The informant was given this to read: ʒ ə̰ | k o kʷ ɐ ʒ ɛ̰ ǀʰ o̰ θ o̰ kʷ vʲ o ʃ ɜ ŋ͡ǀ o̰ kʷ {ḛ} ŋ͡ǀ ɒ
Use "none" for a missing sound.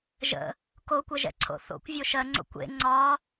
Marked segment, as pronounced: ḛ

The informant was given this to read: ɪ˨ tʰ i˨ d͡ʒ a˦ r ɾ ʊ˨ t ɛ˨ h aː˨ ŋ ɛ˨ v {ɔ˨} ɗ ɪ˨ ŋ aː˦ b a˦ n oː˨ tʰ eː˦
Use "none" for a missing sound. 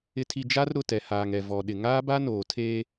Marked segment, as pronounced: ɔ˨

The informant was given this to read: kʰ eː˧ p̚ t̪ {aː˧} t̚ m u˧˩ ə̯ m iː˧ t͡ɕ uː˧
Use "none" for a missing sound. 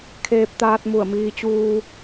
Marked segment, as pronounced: aː˧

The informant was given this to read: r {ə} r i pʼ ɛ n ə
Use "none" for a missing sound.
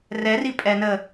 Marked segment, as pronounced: ɛ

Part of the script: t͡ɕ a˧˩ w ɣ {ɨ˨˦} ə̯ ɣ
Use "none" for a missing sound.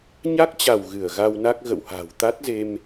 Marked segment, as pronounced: ɨ˧˩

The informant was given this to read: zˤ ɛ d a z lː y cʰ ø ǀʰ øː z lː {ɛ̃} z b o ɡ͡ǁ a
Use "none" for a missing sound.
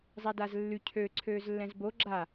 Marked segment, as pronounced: ɛ̃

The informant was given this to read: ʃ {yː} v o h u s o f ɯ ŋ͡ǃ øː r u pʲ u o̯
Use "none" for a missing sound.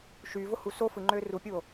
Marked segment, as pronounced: yː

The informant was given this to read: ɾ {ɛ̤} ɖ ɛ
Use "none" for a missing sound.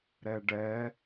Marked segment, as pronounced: ɛ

